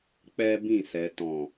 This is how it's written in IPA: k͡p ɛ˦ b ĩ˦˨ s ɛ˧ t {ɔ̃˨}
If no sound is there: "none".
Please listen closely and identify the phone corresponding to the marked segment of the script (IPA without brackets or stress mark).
ɔ̃˨